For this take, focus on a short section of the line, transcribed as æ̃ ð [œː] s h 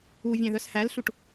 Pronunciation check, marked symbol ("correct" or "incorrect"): incorrect